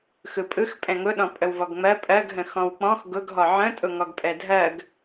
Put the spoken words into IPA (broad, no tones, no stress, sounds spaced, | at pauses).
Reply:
x ɯ pʼ ɯ x pʼ ɛ̃ ŋ ʊ ɗ ɔ̃ pʼ ə w v ɔ ɡ ŋ͡m ɜ pʼ ɜ ɡ ɦ ə̃ x ɔ̃ w k͡p ɔ̃ x ɡ ʊ ɡ ɦ ɔ ʕ ə̃ tʼ ʊ ŋ ɔ ɡ pʼ ɛ dʱ ɜ ɡ